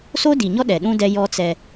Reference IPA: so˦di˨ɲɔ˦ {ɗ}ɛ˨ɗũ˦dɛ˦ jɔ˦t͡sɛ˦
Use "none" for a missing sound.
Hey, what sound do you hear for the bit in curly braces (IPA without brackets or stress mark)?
ɗ